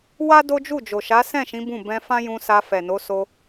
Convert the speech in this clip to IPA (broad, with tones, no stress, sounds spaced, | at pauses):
w a˦ d o˦ d͡ʒ u˦˨ d͡ʒ o˨ ʃ a˨˦ s ɛ̃˦˨ ʃ ĩ˨˦ b ũ˦˨ b ɛ̃˧ f ã˦ j ũ˧ s a˧ f ɛ˨ n o˨˦ s o˧